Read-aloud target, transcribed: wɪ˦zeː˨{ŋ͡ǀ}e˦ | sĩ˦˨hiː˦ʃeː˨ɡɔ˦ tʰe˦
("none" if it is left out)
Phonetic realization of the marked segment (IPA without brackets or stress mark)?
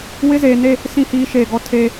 n